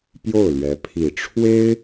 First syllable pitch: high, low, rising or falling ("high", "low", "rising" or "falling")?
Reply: falling